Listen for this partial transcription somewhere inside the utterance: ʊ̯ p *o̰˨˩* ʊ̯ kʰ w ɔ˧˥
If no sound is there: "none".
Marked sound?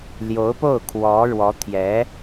o˥˩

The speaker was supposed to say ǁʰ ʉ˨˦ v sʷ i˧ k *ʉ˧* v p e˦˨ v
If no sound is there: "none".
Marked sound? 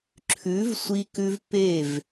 ʉ˧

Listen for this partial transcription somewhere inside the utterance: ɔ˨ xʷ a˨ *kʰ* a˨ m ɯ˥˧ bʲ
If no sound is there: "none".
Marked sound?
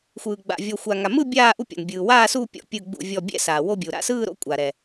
ŋ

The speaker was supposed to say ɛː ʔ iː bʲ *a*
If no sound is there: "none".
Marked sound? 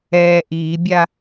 a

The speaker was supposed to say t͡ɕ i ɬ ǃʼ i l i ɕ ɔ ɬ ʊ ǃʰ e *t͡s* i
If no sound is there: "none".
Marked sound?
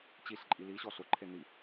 n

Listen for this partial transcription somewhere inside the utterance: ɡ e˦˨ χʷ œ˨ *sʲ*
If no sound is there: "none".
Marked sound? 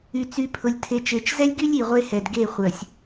sʲ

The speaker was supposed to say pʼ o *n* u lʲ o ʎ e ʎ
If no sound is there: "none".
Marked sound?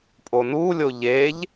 n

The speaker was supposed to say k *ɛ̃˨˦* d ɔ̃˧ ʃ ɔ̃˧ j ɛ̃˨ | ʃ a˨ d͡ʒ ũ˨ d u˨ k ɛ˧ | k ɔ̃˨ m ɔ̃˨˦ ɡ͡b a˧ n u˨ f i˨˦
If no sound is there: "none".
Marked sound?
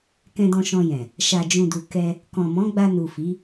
ɛ̃˧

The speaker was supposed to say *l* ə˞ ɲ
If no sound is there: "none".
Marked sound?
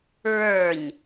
ɹ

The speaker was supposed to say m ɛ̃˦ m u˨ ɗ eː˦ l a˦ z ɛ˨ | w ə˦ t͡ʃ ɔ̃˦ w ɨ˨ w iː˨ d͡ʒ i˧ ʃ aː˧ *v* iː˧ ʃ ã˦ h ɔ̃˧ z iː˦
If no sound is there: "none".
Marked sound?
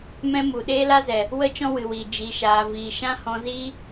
v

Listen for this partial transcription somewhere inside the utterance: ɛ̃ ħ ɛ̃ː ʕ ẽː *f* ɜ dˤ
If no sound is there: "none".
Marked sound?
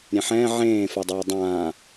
f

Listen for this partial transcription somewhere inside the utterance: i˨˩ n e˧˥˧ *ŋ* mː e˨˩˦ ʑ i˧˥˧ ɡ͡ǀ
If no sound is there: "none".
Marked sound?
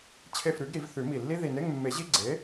ŋ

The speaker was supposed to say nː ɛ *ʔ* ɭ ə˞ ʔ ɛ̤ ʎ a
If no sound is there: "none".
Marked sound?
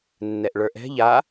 ʔ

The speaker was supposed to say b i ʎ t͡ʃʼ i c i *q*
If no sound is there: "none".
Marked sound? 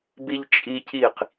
q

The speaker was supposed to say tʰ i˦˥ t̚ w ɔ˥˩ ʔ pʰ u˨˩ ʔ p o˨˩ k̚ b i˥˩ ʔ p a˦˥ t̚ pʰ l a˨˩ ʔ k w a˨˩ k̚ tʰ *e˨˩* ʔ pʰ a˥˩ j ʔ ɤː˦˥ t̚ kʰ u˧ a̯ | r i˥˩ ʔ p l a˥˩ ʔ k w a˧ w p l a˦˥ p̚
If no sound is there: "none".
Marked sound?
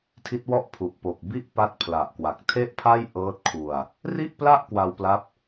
e˥˩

